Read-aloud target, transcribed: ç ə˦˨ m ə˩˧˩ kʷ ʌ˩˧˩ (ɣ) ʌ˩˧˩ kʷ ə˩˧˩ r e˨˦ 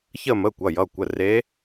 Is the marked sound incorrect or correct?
incorrect